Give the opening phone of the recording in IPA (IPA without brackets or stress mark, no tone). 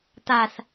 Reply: t̪